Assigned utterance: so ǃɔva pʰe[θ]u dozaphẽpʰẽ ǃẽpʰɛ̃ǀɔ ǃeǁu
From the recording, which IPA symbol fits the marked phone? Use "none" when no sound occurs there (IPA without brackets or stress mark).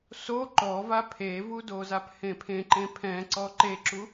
v